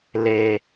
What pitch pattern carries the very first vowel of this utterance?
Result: low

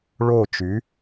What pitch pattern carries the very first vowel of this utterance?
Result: falling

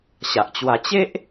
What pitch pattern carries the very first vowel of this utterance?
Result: low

